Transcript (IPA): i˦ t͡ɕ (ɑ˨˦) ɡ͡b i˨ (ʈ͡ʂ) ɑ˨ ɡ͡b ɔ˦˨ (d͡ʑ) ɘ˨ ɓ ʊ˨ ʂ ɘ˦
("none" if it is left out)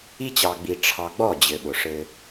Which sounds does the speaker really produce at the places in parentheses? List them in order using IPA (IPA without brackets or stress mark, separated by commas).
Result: ɑ˨, ʈ͡ʂʰ, d͡ʑ